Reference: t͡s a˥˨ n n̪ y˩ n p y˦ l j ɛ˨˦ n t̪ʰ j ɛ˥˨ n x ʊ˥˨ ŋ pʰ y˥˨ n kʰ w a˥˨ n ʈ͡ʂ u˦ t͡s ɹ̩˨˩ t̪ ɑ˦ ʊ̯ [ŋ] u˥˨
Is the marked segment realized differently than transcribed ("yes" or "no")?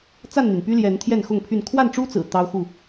yes